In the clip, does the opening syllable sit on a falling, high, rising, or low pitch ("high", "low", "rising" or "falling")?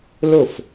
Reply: falling